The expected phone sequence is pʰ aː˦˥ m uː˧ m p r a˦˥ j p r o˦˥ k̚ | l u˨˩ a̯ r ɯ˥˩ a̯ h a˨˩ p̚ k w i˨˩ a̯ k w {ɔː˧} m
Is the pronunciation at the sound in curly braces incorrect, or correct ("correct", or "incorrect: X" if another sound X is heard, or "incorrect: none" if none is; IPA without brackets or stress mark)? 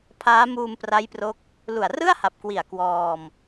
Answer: correct